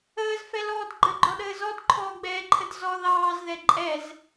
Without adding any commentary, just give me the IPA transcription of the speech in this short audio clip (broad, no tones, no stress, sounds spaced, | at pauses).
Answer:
əː z f ɛ l ɔː d ɡ͡ǃ ə ɡ͡ǃ ɔ ɗ əː z ɔ d ǃʰ ɔː ɡ͡b ɛː ǃʰ ə d z ɔ ð ɑː z ð ɛ ǃʼ ɛ z